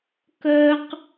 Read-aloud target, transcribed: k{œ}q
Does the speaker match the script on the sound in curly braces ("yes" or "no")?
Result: yes